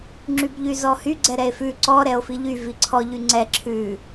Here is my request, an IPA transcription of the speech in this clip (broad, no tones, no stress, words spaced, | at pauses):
ŋ͡ǁybʎyzɔhy ɡ͡ǀɛɾɛe̯fʉ ǀɔ ɾɛo̯fiʎy viǀʰɔ ʎyŋ͡ǀɛ ǁʰʉ